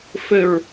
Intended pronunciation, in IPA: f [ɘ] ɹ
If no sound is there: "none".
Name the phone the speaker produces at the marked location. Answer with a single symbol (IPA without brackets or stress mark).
ɘ